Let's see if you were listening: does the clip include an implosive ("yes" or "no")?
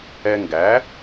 no